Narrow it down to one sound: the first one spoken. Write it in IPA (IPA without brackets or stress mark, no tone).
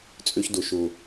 t͡sʼ